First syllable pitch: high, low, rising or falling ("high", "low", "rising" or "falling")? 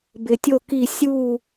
low